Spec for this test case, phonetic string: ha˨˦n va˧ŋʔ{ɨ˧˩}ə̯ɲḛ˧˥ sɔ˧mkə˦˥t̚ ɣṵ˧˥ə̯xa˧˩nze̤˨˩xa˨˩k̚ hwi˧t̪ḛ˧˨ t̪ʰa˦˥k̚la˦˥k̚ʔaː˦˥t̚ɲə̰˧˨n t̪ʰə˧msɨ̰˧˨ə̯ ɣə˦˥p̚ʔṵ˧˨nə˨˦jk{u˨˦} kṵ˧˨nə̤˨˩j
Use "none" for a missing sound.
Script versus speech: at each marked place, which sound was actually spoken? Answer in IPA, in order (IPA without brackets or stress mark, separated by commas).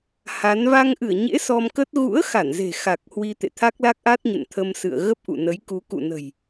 ɨ˧˩, u˨˦